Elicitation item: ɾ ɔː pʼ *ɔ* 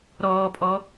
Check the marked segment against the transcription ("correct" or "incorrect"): correct